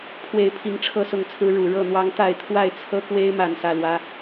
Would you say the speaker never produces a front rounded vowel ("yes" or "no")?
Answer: yes